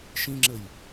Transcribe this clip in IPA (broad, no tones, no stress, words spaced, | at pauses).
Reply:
ʃĩŋ͡ǁəj